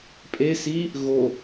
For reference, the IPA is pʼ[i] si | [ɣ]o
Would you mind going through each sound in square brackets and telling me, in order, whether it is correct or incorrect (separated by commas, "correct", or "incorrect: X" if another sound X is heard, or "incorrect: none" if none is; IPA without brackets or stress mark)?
incorrect: e, correct